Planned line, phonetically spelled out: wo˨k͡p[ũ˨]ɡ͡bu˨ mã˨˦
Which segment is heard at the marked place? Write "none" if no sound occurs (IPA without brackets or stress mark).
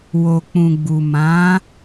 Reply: ũ˨